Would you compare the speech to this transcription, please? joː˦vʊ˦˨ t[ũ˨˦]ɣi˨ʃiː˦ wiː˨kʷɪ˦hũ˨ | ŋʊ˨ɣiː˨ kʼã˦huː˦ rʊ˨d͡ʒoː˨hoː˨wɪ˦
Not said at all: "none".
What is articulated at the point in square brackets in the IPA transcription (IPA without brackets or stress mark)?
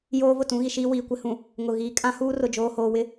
ũ˨˦